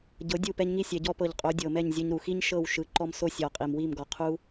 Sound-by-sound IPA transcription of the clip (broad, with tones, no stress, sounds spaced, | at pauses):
ɟ ɤ˨˦ dʲ u˦˨ p ɛ˧ ɲ ŋ i˧ sʲ ɛ˨ ɟ ɔ˧ p ɤ˨ ʎ qʼ o˨˦ dʲ ɤ˨ m ɛ˦˨ ɲ zʲ ɤ˧ ɲ ɾ u˨ x i˦ ɲ ʃ ɤ˦˨ w ʃ ɯ˨˦ ǃ ɔ˧ m s o˦ sʲ ɔ˨ qʼ i˨ m w i˦˨ m ɡ ɔ˨ qʰ u˦